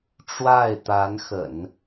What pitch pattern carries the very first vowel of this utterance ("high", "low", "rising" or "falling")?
falling